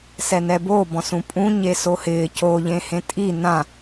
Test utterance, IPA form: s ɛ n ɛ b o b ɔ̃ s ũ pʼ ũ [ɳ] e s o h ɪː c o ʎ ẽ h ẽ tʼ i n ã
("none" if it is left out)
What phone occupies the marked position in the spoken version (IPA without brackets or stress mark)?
ɲ